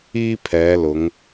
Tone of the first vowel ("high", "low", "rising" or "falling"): high